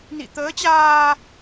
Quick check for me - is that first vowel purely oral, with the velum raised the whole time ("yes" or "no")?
yes